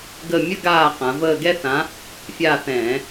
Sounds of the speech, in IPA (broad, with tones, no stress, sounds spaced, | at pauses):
ɡ ə˦˨ mʲ ə˥ ɡ aː˦˨ q ã˩˧ v əː˦˨ ɡ ɛ˥ θ ã˨˥ | fʲ aː˦˨ θ ɛ̃ː˧˩˧